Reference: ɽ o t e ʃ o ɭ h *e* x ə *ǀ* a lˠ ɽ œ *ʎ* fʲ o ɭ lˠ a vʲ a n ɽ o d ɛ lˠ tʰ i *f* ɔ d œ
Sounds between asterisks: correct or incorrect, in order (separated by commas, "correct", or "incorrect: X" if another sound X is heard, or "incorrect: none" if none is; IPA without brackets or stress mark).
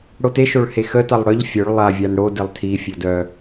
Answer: correct, incorrect: t, correct, incorrect: fʲ